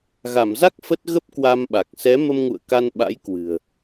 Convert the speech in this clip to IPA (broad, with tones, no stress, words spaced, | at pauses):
ɣa˧˩mza˦˥k̚ fə˦˥t̚ ɣə˦˥p̚kwa˧mɓa˨˩k̚ sɛ˨˦mə˧mŋṵ˧˨ə̯ ka˧nɓa̰˧˥jkwɨ̤˨˩ə̯